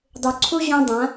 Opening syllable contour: low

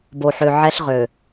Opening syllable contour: low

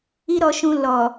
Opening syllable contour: high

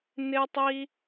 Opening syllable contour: high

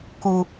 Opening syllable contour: low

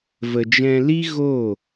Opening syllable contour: low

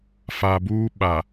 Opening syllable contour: low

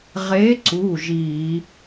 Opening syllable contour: rising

